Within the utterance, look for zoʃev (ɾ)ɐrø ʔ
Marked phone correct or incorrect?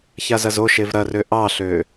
correct